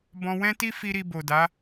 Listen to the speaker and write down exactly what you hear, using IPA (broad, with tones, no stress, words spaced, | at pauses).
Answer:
bɔ̃˧wɛ̃˦ ti˦ fi˦ɾi˧ bo˨da˨˦